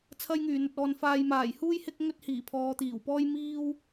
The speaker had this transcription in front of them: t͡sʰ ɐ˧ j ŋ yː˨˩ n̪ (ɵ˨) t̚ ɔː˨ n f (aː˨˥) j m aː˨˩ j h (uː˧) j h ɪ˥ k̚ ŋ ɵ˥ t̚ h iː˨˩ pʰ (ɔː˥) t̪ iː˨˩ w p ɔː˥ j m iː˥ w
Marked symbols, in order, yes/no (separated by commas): yes, no, no, no